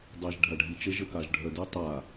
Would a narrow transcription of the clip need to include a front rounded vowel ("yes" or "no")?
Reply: yes